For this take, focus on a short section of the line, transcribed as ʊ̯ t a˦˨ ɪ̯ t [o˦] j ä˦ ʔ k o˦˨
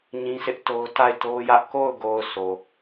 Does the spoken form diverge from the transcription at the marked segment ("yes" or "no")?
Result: no